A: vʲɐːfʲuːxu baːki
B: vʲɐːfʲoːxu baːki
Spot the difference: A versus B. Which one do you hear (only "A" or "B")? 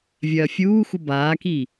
A